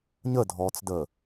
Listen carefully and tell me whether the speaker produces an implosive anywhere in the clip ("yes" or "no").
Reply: no